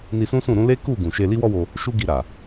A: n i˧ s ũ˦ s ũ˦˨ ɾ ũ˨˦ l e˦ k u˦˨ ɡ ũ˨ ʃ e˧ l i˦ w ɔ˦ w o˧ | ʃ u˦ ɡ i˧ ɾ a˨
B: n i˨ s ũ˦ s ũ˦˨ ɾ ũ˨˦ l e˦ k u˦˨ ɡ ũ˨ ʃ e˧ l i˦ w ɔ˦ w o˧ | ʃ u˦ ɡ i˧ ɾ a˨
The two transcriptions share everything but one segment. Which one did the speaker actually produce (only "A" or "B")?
A